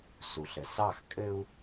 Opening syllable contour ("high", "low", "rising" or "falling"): low